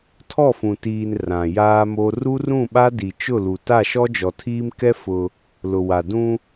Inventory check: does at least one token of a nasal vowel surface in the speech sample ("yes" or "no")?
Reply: yes